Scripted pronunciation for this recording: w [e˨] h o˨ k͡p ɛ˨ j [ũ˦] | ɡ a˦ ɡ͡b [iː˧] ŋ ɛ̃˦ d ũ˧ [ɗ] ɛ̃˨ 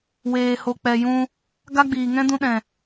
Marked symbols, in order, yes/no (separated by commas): no, no, no, yes